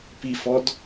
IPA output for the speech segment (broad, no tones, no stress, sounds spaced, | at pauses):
p i f ɔ d